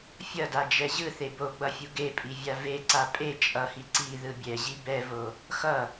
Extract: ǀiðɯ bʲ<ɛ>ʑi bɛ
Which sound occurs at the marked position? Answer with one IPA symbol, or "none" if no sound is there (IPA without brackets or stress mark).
ɛ